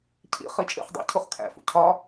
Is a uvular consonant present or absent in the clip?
present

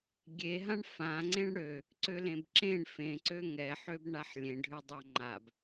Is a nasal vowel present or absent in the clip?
present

